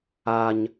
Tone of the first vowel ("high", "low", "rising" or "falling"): high